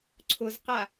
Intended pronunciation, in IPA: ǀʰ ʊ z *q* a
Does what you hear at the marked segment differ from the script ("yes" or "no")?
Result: no